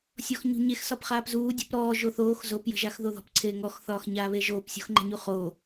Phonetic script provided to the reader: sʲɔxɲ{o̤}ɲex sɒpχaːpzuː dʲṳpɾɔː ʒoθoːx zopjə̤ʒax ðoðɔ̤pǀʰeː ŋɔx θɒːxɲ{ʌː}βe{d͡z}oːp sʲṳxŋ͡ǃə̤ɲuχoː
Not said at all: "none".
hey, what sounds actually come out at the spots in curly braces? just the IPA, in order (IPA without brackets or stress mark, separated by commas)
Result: ṳ, aː, ʒ